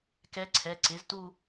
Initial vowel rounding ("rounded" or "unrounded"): unrounded